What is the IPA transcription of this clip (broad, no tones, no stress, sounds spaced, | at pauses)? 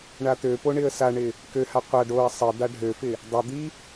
ɳ a t̪ ø p o ɳ ɪ ə̯ s a ɳ ɪ | k ø h a qʷ a ɖ o ə̯ sˤ ɪ d̪ a ɖʱ ø f ɪ | dˤ ɪ d̪ i